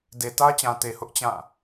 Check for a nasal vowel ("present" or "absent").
present